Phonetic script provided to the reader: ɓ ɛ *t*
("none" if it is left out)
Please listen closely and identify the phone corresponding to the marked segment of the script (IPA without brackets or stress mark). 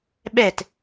t